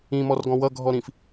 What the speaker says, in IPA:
ĩ m ɔ r ɡ ɔ̃ w ʌ ɡʱ ɔ ɾ ĩ f

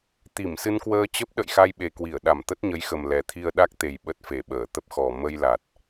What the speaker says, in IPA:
t̪ i˧˩ m s ɨ˧ n k w əː˧ t͡ɕ ə˦˥ p̚ ɗ ə̰˧˨ j x a˧ j ɓ e˨˩ k w i˧˩ ə̯ ɗ a˧˩ m t̪ ə˦˥ t̚ ɲ ə˨˦ j x ə˨˩ m l ɛ˨˩ t̪ʰ i˧ ə̯ ɗ a˦˥ k̚ t̪ e˨˩ j ɓ ə˦˥ t̚ f e˧˩ ɓ əː˧˩ t̪ ə˦˥ p̚ x ɔ˨˩ m ə˧ j l a˨˩ t̚

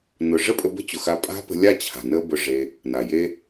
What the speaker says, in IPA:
n ʊ˨ ʐ ə˦ pʼ ə˧ b ə̤˦ t͡ɕ ʊ˨ x a˧ pʼ a̤˦ p ə̤˧ lʲ a˦˨ t͡ɕʰ a̤˨ n ə˦ b ʊ˧ ʐ e˧ | n a˨ j e˦

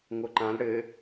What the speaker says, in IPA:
ŋ o ǃ ã l ɽ ɘ

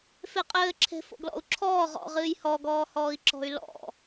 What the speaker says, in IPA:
f e qʼ ɘː ǁʰ e̤ f o̰ ɡ l ɔ̰ u̯ ǁʰ ɔː ʁ ɔ̰ ʁ ɨː j h ɔ ɡ ɔː h ɔː i̯ ǁ ɔ̤ y̯ l ɔ̰

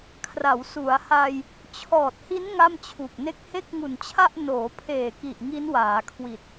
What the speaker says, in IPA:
kʰ r a˩˦ w s u˩˦ a̯ h a˧ j | t͡ɕʰ ɔː˨˩ t̚ h i˦˥ n ŋ a˥˩ m t͡ɕʰ u˨˩ k̚ n e˥˩ k̚ h e˥˩ k̚ ŋ u˨˩ n t͡ɕʰ a˥˩ ʔ n oː˩˦ pʰ eː˨˩ k i˨˩ ʔ ŋ i˦˥ n w aː˩˦ kʰ w i˨˩ t̚

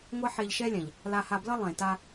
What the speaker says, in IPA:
ŋʷ ɛ˦ ħ e˧ ʎ ʃ ɛ˦ lʲ ã˨ ʎ | l a˧ h a˧ b l ʌ˦ lˠ ẽ˨ t a˧

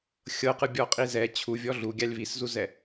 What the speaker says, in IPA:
xʲ ɤ q ɯ bʲ ɔ qʼ i z ɛ t͡ɕʰ u vʲ ɔ ɮ u ɡʲ a lʲ β i s z u z ɛ

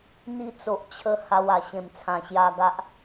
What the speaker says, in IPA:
n̪ i˧ t͡s o˨ ʔ t͡ɕʰ ə˧ h a˧ w a˨˩ ɕ ẽ˨˩ m t͡sʰ ã˨˩ ɕ j a˧ ɡ a˦ ʔ

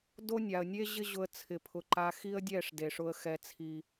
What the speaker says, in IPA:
d o˦ nʲ a˨ ə̯ nʲ e˦ ʑ ɪ˦ ʑ ʊ˧ ə̯ t͡sʰ ɪ˨ pʰ ʊ˨ ǃ a˧ x i˦ ə̯ dʲ ɛ˦˨ ʂ d e˨ ʂ ʊ˧ ə̯ x ɛ˨ t͡sʰ i˨

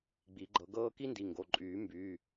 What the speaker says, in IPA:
ɡ͡b i˨˩˦ ɡ͡ǃ ɤ˨˩˦ ɡ ɤː˥ k i˥ n d i˩˧˩ ŋ ɡ o˩˧˩ ǃʼ yː˨˩˦ m b yː˩˧˩

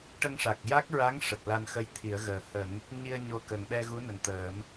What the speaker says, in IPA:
ʈ ə˧ ŋ ʂ a˨˩ k̚ j a˦˥ k̚ ɹ a˧˥ ŋ ʂ ə˨˩ k̚ l a˧ n x ə˧ j t̪ʰ i˨˩˦ ə̯ ɣ əː˨˩ h ə˨˩˦ ŋ | ɲ i˧ ə̯ ɲ o˧ k ə˨˩ ŋ ɓ ɛ˧ ɣ u˧˥ n ə˨˩ ŋ t̪ əː˨˩˦ m

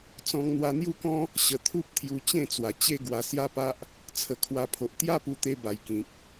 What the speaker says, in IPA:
t͡s ɔ̃˧ ŋ n̪ w a˧ n̪ j u˦ k ɔ̃˦ | ɕ ə˧ t̪ʰ u˦ p̚ t̪ʰ j u˧ t͡ɕ ẽ˥˧ t͡s w a˨˩ t͡ɕ e˦ ɡ w a˧ s j a˦ p a˦ ʔ | t͡sʰ ə˨˩ kʰ w a˧ pʰ o˨ ʔ t̪ j a˦ p u˧ t̪ e˧ b a˨˩ j k ĩ˨ k̚

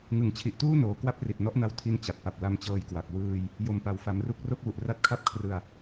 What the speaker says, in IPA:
ŋ ɯ˨˩ ŋ t͡ɕʰ i˨˩ ʔ t uː˥˩ n oː˩˦ k w a˥˩ p̚ r i˨˩ t̚ n ɔ˦˥ ʔ n a˦˥ w tʰ i˦˥ n t͡ɕ a˨˩ t̚ p a˨˩ p̚ l a˧ m t͡ɕ ɤː˧ j k w a˨˩ k̚ w ɯː˧ j | j o˨˩ m p a˩˦ w f a˩˦ m r u˦˥ k̚ r o˥˩ k̚ w u˨˩ ʔ r a˦˥ t̚ kʰ a˥˩ p̚ kʰ r ɯ˧ a̯

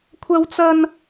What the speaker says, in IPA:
kʷʰ ɐ˥ w t͡s ɐ˥ n

